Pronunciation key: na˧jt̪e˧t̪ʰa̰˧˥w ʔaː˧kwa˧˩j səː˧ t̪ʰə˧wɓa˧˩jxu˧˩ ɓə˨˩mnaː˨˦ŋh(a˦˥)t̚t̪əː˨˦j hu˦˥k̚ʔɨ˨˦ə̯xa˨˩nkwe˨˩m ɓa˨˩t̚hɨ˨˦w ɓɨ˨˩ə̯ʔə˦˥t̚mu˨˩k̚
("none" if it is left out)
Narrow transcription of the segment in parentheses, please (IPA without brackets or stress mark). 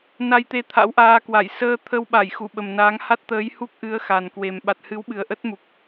a˦˥